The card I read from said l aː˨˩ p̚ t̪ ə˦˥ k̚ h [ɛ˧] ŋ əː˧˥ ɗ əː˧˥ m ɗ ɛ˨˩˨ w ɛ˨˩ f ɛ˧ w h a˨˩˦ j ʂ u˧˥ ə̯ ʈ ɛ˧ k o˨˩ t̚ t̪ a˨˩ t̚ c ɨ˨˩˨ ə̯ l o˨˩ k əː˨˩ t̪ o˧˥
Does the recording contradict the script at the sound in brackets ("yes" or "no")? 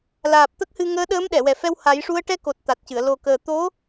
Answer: yes